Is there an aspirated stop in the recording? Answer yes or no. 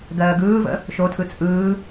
yes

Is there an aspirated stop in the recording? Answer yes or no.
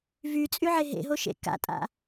no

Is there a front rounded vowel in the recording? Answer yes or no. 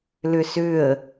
yes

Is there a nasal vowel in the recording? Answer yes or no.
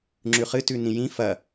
yes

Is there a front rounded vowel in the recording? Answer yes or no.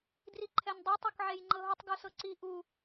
no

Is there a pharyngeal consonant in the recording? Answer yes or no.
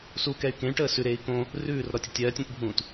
no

